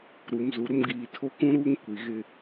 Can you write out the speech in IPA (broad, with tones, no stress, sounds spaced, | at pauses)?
ɾ u˨ m z u˨ ɾ ʊ˦ m ɡ iː˨ tʰ o˦ k ũ˦ ɾ uː˦ ŋ kʷ i˨ ɣ ɪ˦